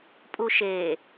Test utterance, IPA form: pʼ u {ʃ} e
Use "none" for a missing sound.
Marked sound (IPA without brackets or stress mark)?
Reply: ʃ